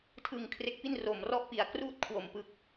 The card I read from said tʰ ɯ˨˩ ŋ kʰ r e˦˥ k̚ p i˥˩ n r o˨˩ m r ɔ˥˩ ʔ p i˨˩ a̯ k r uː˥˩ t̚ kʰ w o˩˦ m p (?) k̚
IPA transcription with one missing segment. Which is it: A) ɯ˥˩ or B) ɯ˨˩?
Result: B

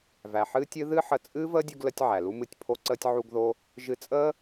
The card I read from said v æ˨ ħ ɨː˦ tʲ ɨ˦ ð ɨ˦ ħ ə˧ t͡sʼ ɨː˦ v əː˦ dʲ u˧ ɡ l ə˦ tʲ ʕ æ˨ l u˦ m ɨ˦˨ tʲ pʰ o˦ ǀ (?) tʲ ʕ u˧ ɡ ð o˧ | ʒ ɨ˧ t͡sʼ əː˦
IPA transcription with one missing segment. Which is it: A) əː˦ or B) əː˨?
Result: A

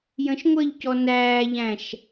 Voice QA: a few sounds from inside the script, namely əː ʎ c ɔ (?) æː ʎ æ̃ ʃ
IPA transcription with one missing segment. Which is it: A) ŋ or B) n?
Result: B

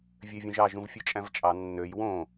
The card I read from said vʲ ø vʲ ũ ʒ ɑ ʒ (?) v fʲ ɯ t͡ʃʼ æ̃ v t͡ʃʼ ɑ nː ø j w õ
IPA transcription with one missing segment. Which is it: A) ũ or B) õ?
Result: A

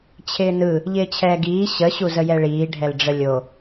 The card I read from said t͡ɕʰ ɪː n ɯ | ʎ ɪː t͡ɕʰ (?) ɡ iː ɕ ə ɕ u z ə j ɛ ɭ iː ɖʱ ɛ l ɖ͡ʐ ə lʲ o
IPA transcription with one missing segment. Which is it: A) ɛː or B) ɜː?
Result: A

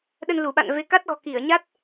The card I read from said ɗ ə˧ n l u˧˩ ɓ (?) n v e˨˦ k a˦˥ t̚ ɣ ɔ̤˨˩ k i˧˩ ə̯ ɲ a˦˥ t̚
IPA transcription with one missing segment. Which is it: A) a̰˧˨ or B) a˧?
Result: A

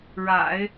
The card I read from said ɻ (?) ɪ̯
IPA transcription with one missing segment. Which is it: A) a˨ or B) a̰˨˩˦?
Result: B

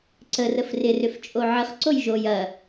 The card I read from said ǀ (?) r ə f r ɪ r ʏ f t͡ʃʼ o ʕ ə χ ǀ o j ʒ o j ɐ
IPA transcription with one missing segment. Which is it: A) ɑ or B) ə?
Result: B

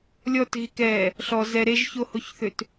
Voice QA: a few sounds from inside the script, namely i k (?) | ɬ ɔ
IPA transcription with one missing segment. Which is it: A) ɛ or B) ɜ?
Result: A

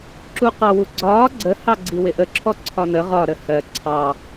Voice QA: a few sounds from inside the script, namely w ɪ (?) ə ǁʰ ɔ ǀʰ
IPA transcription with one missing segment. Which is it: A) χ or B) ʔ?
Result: B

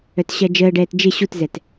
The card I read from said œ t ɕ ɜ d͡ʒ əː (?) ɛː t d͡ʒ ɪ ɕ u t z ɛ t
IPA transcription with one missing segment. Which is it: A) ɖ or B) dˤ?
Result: A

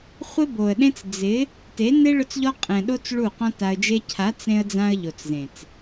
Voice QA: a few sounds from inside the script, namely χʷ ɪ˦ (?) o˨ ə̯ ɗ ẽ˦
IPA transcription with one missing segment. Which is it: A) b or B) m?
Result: A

